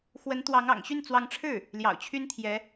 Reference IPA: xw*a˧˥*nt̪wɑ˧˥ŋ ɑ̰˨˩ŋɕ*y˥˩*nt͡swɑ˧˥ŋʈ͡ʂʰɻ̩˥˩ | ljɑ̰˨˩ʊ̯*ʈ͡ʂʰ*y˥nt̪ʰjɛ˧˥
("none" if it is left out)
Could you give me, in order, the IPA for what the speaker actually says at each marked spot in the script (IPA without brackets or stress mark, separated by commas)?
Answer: ə˧˥, y˥˩, t͡ɕʰ